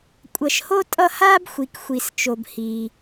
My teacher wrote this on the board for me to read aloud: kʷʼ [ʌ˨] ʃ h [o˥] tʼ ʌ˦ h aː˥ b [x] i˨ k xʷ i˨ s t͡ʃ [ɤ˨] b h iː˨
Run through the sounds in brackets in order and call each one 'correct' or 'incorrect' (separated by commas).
correct, correct, incorrect, incorrect